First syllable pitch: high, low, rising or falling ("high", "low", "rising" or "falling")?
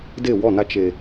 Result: falling